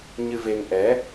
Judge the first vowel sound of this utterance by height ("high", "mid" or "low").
high